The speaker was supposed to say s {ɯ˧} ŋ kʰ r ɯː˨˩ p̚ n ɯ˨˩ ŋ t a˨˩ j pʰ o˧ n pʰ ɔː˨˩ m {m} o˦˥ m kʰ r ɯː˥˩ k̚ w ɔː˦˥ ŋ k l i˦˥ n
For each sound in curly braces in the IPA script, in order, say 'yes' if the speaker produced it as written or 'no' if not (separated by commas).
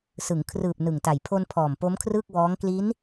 no, no